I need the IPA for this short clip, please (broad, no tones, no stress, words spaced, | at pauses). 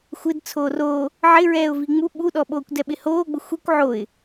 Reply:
xʷɪd t͡sʰoːroː | ʕɪɹɛːʊ̯vi ŋ͡mu ɓuɗɔ ɓoːkʷdɛɓɪhoː ɡ͡bʊxʷikʷ ʕoɪ̯